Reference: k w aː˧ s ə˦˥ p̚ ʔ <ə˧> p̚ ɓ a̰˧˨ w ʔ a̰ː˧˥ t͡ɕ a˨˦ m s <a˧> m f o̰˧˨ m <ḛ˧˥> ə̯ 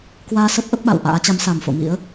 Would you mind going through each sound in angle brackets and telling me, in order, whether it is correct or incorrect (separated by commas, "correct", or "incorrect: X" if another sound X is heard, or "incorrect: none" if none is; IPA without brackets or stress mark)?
incorrect: ə˦˥, incorrect: a˨˩, incorrect: ḭ˧˥